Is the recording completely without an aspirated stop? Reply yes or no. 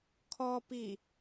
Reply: no